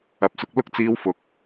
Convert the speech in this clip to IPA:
ɐ˨ p̚ s ʊ˧ k̚ l ʊ˥ k̚ t͡s iː˧ w f ʊ˨˥ k̚

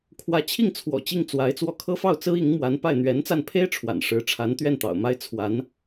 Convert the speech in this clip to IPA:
kʰ w ä˧˥ t͡ɕʰ i˥˩ ŋ t͡sʰ w ɔ̰˨˩ t͡ɕ i˥˩ ŋ t͡s w a˧˥ ɪ̯ t͡s w ɔ˥˩ kʰ ɤ˥ f ɑ˥˩ ʊ̯ t͡s ɹ̩˥ i˧˥ ŋ m w a˧˥ n p a˥˩ ɪ̯ n̪ ɥ ɛ˧˥ n t͡s a˥˩ n pʰ e˥ ɪ̯ ʈ͡ʂʰ w a̰˨˩ n ʂ ɻ̩˧˥ ʈ͡ʂʰ a˧˥ n t̪ ɥ ɛ˥˩ n t̪ ɑ̰˨˩ ʊ̯ m a˥ ɪ̯ t͡sʰ w a˧˥ n

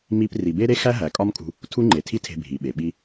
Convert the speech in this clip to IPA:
m i˧ p r i˨ b e˦ ɾ e˦ x æ˦ ɦ æ˨ kʼ ɒ˦ m kʼ ṳ˧ | tʰ u˦ ŋ͡ǃ e˨ tʰ i˦ tʰ e̤˧ bʱ i˨ ɓ e˨ ɓ i˦

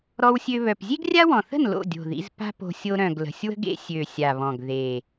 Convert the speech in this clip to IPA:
ɾ ɔ˧ w sʲ ø˧ β œ˨˩ p zʲ e˥ ɡ rʲ a˥ w ɔ̃˨˩ θ ə̤˥˨ n l o̰˥˨ dʲ o̤˨˩ ð ḭ˧ z p a̤˥ p o̤˧ sʲ o˧ ɾ œ̃˨˩ ɡ l ə̤˨˩ sʲ w ə̤˥ ɡ ḛ˥ sʲ ø˨˩ sʲ a˨˩ β ɔ̃˨˩ ɡ ð e˨˩

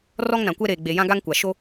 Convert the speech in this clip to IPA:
r ɔ˦ ŋ n ã˨ kʷ ɛ˦ ɾ eː˨ ɡ͡b e˨ j ã˦ ɡ a˦ ŋ kʷ a˨ ʃ o˦

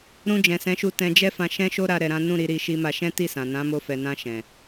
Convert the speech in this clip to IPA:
ɾ ũ˧ d͡ʒ ɛ̃˨ s ɛ̃˨˦ ʃ u˧ t ɛ̃˧ d͡ʒ ɛ˦ f ã˧ ʃ ɛ̃˦ ʃ o˦ ɾ a˧ ɾ ɛ˧ ɾ ã˦ n ũ˦˨ ɾ i˨˦ ɾ i˧ ʃ i˧ m a˧ ʃ ɛ̃˦ t i˦˨ s ã˨ n ã˨˦ m o˧ f ɛ˨ n ã˧ ʃ ɛ̃˨

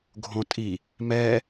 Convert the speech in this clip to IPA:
ɡʱ õ tʼ i | m ɛ

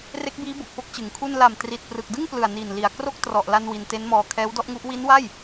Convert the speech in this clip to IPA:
r e˦˥ k̚ b iː˦˥ b o˨˩ k̚ f o˦˥ k̚ t͡ɕ ɯ˩˦ ŋ kʰ u˥˩ n l a˨˩ m t r i˨˩ t̚ p r ɯ˨˩ k̚ d ɯ˥˩ ŋ p l ɯ˨˩ a̯ n iː˨˩ n l i˨˩ a̯ k r o˥˩ k̚ t r ɔ˨˩ ʔ l a˧ n w i˧ n t e˦˥ n m ɔː˧ kʰ ɛː˦˥ w d ɔ˥˩ ʔ ŋ u˦˥ ʔ w i˦˥ n w a˥˩ j

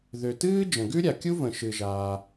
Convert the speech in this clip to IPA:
ð ø˩ t ɨː˥ d͡ʒ ə̃˩ ɡ ʉ˥ ɾʲ a˩ kʲ u˥ v ə̃˩ ʃ ɨ˩ ʒ aː˩

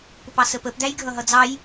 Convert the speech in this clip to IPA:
p ʊ p ɑ s ə p ə p d̪ æ j ɡʱ ʌ ɦ ʌ d͡z ɑ j

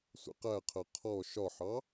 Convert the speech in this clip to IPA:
sʷ ɛ̰ q æ qʰ ɜ qʰ ɔ ʃ ɒ ħ ɑ

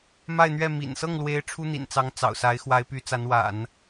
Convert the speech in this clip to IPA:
m a˥˧ ɪ̯ n̪ ɥ ɛ˥˩ m ḭ˨˩ n s ɤ˥˩ ŋ l w e˧˥ ɪ̯ ʈ͡ʂʰ u˥ n̪ ḭ˨˩ n t͡s ɑ˧˥ ŋ t͡s ɑ̰˨˩ ʊ̯ s a˧˥ ɪ̯ x w a˧˥ ɪ̯ p y˧˥ t͡s a˧˥ n w a̰˨˩˦ n

